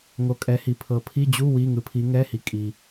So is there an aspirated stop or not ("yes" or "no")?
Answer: yes